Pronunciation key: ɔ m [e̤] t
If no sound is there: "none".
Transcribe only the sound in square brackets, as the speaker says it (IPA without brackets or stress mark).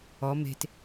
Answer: e̤